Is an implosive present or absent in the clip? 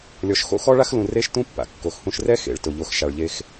absent